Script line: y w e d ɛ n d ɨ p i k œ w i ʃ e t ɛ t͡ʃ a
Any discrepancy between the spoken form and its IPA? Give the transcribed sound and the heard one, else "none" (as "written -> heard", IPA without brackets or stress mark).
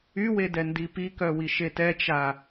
ɨ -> i